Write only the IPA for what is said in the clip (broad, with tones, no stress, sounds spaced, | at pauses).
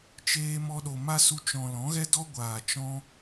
t͡ʃ eː˧ m ɔ˧ ɗ o˨ m a˦ s u˧ t͡ʃ ɔ̃˨ l ɔ̃˨˦ ɣ ɛ˦ d ɔ˦ ɡʷ aː˨ t͡ʃ ɔ̃˦